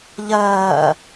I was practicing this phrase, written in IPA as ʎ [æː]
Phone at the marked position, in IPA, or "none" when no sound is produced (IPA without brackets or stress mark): ɜː